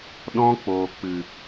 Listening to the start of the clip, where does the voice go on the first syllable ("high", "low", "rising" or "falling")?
high